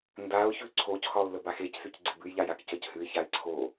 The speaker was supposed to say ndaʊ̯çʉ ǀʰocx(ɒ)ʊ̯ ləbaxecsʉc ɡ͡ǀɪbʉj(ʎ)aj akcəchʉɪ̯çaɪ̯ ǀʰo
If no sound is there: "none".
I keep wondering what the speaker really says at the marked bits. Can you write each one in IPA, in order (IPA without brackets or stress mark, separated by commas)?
ɒ, ʎ